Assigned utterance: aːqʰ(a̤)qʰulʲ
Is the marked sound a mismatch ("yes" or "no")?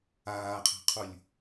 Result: no